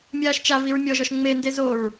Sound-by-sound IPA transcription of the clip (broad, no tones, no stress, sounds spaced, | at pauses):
mʲ aː ʃ t͡ʃ a v i ɹ mʲ ɔ ʒ ɔ ʃ ŋ͡m e n d e z o ɹ